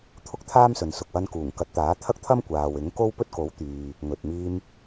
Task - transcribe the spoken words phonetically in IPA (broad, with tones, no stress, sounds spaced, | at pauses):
t̪ʰ ʊ˥ k̚ t̪ʰ aː˥ m s ɵ˨ n s ʊ˨ k̚ w ɐ˧ n k uː˨˩ ŋ k ɐ˨˥ t̚ t̪ aː˨˥ t̪ʰ ɐ˥ k̚ t̪ʰ ɐ˥ m kʷ aː˨ w ɪ˨˥ ŋ k o˥ w p ɵ˥ t̚ k o˨˥ w t̪ yː˨ | ŋ ɵ˨ t̚ m iː˧ m